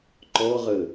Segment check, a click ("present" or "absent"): present